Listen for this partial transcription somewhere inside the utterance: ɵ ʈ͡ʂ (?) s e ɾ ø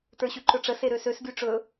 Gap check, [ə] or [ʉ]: ə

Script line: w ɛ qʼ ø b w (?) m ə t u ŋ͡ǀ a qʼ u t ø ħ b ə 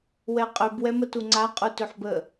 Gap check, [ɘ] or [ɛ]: ɛ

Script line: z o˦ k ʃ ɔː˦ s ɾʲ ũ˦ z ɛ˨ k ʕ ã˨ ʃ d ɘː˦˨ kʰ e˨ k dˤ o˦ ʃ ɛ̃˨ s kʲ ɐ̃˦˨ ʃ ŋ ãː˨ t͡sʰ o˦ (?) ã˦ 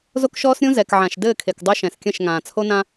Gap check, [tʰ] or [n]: n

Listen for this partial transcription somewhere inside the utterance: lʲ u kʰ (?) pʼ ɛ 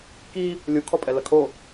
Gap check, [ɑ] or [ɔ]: ɔ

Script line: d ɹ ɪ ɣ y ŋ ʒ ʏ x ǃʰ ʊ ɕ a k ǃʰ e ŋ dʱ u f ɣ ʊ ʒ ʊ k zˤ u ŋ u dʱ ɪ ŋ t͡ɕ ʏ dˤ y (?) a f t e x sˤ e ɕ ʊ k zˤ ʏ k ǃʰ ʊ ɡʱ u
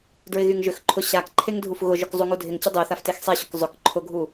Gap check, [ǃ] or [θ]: θ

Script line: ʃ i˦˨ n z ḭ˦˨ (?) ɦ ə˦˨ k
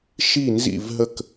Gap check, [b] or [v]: v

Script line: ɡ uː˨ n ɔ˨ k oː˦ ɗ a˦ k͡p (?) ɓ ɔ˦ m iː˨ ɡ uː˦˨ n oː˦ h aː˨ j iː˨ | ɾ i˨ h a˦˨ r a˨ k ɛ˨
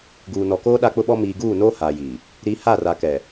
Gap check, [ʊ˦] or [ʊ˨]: ʊ˦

